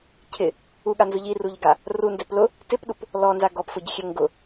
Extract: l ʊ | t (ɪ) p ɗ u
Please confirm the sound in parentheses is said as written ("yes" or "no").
yes